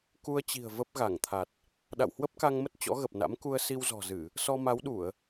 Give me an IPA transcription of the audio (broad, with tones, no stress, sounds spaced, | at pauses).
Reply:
k u˧ ə̯ t͡ɕ i̤˨˩ ə̯ v ə˦˥ p̚ ɣ a˧˩ ŋ t̪ʰ a˨˩ t̚ | ɗ a̰˧˨ w h w ə˦˥ p̚ k a˧ ŋ m ə˦˥ t̚ t͡ɕ ɔ̰˧˥ ɣ ə˨˩ p̚ n a̰˧˥ m k u˧ ə̯ s i˧ w z ɔ̤˨˩ z ɨ˧˩˨ | s ɔ˧ m a˨˦ w ɗ u˧˩˨ ə̯